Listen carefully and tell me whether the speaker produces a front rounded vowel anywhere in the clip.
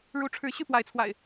yes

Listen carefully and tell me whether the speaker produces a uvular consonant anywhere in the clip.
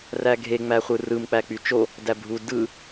yes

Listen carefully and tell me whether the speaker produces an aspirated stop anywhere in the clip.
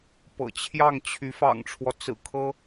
yes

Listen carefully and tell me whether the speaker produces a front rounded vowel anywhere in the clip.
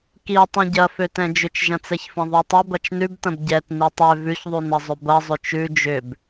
yes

